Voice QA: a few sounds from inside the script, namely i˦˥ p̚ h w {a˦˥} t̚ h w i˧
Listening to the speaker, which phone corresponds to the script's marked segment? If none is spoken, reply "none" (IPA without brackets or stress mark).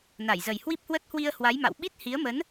ə˦˥